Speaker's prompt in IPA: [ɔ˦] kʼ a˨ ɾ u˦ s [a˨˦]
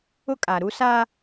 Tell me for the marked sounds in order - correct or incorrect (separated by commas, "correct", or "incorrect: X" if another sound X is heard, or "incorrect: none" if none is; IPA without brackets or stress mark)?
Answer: incorrect: ʊ˦, incorrect: a˦